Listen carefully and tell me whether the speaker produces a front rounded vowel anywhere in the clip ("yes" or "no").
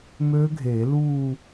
yes